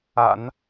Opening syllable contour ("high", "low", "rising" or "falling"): low